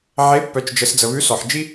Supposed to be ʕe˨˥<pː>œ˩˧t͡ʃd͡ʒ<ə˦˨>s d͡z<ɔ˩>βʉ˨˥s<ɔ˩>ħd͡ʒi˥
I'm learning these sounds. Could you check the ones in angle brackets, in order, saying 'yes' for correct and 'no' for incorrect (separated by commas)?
yes, no, no, yes